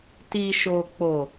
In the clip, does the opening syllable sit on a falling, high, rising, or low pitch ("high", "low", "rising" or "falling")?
low